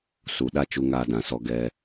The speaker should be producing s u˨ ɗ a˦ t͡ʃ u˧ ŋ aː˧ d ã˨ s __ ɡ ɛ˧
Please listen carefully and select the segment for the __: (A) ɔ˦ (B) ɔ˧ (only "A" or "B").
B